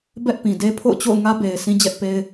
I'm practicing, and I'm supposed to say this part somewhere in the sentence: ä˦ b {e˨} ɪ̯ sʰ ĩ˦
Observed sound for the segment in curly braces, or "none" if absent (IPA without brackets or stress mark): e˨